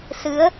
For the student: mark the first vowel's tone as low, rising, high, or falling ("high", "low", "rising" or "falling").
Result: rising